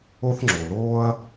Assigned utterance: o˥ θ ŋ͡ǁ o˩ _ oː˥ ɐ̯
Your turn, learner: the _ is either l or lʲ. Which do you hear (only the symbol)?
l